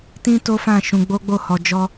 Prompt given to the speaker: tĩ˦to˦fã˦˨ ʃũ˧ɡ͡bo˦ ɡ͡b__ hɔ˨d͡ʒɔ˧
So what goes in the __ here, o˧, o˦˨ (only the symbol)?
o˦˨